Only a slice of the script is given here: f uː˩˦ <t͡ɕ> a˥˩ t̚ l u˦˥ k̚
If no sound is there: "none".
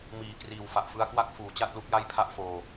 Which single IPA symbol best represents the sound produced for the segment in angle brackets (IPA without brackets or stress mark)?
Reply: t͡ɕ